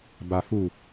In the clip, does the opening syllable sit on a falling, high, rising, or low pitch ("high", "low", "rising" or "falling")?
low